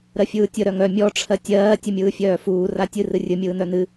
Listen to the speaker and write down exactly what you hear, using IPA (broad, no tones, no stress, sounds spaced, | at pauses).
ɾ ɜ fʲ ɯː tʲ ə ɾ œ ŋ œ mʲ ɔ ʈ͡ʂʰ ɜ tʲ ɜː tʲ ɨ mʲ ɯː fʲ œː f uː r a tʲ ɨ r ɨ rʲ ɨ mʲ ɯː n œ n ɨ